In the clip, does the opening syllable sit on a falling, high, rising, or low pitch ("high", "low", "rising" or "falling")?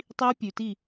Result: high